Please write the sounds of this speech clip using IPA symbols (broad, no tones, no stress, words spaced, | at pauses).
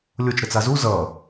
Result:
lʲot͡ʃɾət͡sa zu zʌ